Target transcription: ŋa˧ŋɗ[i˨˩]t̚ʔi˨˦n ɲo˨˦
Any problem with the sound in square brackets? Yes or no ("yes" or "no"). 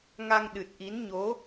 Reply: yes